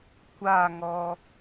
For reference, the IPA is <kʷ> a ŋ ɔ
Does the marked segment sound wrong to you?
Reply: no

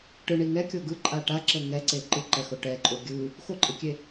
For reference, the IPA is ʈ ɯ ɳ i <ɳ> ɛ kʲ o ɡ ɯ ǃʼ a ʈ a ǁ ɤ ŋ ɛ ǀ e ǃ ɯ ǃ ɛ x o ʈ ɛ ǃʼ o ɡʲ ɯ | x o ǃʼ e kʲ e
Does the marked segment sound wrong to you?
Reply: yes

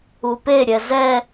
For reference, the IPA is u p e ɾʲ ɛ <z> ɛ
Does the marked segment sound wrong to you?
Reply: no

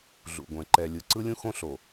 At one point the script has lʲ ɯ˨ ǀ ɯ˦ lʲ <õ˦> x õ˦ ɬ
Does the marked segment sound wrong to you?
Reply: yes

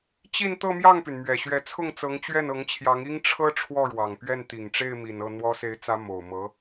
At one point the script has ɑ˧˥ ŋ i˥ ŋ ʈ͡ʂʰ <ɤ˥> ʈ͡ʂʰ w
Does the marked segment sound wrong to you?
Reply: no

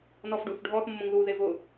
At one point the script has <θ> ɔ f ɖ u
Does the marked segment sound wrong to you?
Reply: yes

